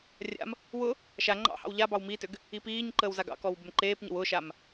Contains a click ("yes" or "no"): yes